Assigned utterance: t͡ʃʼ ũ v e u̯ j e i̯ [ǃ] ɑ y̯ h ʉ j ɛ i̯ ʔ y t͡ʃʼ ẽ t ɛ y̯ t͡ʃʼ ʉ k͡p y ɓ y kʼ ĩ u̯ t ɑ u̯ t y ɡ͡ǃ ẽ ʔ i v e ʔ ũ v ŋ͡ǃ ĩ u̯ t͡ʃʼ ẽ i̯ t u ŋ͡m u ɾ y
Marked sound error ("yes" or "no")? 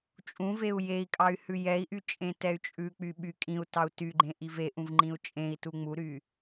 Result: yes